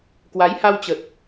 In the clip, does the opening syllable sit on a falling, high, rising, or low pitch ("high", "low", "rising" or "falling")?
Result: rising